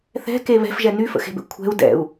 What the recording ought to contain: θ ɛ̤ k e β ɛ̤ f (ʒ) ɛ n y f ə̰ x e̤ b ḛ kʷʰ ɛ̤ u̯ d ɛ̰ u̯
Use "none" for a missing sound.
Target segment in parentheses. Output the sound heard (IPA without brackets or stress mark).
ʒ